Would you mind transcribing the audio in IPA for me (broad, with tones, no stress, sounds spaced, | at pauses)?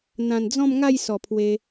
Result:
n̪ ã˨˩ n d͡z ɔ̃˥˧ m ŋ a˥˧ j s ɔ˨˩ pʰ w e˧